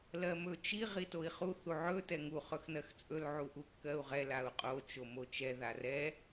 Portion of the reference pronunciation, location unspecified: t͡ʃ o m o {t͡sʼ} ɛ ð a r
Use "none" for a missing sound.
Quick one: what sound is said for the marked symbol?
t͡ʃ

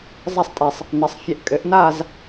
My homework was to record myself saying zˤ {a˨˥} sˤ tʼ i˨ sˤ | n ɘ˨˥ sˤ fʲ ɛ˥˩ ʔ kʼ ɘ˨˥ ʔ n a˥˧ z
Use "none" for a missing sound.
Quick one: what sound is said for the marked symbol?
a˥˧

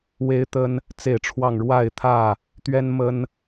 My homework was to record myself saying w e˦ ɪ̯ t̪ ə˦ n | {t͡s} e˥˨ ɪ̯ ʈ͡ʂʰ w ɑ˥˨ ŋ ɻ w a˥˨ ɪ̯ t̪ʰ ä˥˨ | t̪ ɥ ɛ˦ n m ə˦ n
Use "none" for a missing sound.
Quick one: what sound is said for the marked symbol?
t͡s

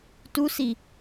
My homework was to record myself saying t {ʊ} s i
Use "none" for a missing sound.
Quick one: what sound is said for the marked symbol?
u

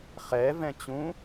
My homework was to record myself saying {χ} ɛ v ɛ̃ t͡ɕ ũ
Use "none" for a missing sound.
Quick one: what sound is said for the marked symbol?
χ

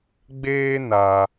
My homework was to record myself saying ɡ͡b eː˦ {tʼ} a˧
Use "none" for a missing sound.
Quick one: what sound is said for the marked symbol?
n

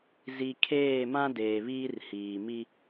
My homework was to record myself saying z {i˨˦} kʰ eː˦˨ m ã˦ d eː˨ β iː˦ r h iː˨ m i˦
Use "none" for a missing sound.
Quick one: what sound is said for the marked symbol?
i˨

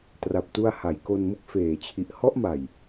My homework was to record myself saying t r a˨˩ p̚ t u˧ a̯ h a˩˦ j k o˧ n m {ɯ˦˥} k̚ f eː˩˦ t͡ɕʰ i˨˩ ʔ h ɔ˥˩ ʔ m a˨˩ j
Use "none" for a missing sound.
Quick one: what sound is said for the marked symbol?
ɯ˦˥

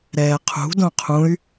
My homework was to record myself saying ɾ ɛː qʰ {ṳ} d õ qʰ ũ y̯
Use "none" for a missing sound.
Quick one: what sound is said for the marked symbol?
ṳ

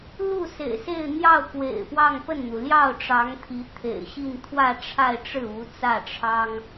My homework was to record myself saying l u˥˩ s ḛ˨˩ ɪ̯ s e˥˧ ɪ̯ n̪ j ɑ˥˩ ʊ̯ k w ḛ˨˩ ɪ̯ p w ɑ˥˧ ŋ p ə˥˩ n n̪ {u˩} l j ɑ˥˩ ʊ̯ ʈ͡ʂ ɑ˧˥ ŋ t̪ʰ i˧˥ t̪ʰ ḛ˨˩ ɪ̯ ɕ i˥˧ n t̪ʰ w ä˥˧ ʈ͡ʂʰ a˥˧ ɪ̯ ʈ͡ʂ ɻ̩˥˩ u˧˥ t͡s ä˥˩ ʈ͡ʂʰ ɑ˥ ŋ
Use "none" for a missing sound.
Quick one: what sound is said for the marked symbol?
u˩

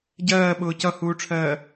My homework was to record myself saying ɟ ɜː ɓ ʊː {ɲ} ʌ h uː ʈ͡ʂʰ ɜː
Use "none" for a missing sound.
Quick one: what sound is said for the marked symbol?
c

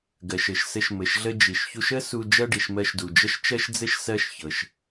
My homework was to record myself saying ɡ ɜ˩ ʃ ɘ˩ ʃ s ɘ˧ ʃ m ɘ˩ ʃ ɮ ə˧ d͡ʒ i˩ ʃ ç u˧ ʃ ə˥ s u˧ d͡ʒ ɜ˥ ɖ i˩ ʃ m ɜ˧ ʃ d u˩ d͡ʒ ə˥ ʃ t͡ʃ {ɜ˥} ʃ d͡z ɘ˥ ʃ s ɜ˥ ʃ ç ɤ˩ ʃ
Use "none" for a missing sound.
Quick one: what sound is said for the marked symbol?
ɜ˥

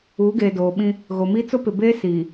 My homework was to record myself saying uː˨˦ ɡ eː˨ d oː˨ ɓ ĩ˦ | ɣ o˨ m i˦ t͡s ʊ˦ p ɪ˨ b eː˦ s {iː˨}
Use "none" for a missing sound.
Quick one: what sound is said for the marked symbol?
iː˨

